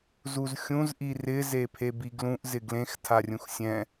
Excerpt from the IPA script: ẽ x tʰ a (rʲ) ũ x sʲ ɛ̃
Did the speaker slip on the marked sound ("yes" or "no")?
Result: no